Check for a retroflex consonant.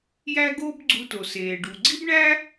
present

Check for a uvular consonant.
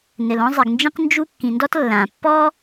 present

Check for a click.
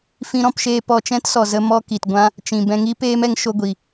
absent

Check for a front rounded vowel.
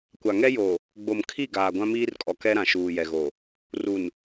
absent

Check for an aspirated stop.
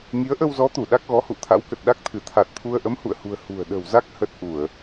present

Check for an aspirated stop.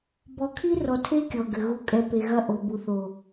present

